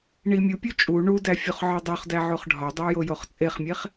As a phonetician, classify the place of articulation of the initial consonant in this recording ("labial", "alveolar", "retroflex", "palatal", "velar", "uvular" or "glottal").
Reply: retroflex